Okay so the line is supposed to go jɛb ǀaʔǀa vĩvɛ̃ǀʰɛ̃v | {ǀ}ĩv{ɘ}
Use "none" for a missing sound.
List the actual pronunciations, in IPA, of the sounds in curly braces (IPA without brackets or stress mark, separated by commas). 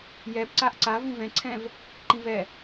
ǃ, ɛ